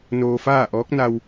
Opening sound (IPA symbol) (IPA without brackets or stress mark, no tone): n